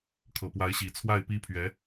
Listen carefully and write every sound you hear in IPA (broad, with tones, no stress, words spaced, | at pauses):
kʰɤ˨˩pwa˧˥ɪ̯ɕi˨˩ t͡sʰwa˥˩ɪ̯pi˥pʰɥɛ˧˥